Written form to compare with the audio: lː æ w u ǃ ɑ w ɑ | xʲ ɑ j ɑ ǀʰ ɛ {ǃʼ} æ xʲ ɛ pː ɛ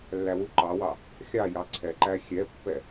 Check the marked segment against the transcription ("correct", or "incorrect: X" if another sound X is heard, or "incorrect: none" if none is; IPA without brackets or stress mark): incorrect: ǃ